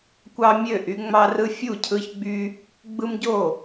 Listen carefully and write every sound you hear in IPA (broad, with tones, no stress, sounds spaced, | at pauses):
kʷ ɑ˦ mʲ ø˥˩ ʔ y˦ ŋ͡m ɑ˦ r ɯ˦ fʲ u˥˩ cʰ ɯ˦ ç ɡ͡b y˦ | ɡ͡b ɯ˦ m ɟ o˥˩